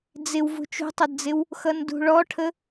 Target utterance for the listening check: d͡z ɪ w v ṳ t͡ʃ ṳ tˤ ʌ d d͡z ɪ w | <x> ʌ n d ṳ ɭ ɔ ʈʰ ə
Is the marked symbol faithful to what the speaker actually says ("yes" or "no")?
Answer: yes